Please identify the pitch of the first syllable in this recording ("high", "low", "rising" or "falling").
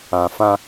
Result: low